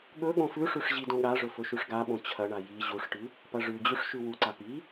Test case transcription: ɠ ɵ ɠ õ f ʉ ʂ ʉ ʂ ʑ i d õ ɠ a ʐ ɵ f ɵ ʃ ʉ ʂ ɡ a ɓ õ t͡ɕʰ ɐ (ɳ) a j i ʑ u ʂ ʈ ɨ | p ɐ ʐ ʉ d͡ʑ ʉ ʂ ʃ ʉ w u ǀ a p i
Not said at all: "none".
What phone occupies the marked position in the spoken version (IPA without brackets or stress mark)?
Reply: ɳ